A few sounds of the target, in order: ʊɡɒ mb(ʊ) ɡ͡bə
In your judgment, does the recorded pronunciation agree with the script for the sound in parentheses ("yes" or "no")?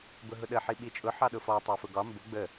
yes